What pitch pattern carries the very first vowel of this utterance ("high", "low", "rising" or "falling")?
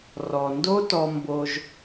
low